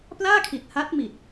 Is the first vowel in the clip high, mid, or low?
low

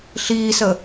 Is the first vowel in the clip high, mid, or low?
high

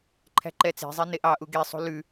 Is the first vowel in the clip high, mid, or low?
low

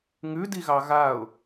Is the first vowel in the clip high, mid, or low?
high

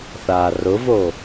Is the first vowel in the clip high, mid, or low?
low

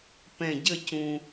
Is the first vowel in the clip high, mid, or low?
mid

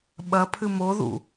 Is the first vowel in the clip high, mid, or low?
low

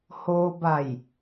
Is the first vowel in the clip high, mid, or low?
mid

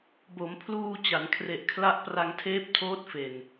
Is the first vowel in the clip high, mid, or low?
mid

